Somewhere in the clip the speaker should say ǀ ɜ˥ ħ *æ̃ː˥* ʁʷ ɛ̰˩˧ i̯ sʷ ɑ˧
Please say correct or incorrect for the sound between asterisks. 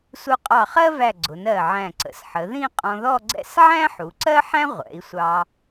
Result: incorrect: æ̃˥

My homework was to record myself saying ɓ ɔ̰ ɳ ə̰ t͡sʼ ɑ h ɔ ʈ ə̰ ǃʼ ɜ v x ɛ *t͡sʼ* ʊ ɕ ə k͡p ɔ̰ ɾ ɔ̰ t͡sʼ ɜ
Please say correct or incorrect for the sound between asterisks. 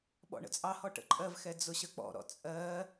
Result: incorrect: d͡z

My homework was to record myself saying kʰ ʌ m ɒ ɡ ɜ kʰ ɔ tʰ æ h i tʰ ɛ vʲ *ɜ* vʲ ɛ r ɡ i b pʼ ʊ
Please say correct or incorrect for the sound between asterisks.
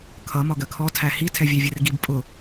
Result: incorrect: æ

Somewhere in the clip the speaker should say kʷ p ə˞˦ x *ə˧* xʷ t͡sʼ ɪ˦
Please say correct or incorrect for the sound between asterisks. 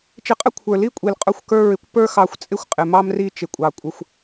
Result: incorrect: ɑ˧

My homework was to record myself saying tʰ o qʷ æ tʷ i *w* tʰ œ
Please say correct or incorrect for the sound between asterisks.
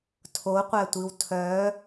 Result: correct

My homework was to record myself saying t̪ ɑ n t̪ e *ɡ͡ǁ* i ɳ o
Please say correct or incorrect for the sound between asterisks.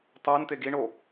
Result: incorrect: ɡ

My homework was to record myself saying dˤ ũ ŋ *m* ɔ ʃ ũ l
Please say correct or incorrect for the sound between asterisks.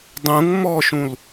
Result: correct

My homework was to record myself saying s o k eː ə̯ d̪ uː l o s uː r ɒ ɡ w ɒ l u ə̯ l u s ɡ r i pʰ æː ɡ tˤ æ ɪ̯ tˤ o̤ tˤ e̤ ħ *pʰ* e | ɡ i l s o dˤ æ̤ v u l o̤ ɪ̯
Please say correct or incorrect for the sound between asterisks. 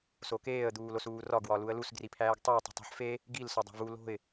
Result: incorrect: f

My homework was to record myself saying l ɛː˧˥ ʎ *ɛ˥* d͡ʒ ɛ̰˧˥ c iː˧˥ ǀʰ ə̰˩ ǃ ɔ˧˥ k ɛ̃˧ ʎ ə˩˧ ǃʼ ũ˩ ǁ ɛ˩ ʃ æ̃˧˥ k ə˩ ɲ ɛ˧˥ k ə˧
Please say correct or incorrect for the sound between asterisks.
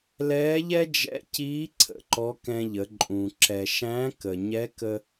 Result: correct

